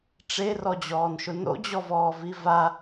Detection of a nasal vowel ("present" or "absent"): absent